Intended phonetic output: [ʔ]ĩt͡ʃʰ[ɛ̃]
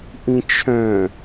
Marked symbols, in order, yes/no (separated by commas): yes, no